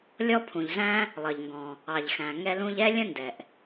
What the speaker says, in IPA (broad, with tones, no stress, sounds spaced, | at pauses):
lʲ ɔ˥ pʰ ũ˩ ʎ z æ̃˥ | lˠ ʌ˩ ʎ ŋ ɡ ɔ̃˩ | ɑ˩ ʎ x æ̃˩ ŋ ɛ˧ l ũ˧ ʎ ɛ˥ lʲ ə̃˥ n d ɛ˩ ʔ